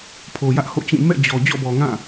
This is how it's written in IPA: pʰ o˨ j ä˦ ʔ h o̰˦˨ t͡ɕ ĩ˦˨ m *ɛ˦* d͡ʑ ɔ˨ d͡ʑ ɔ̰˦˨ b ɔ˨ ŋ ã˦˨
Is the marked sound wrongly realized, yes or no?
yes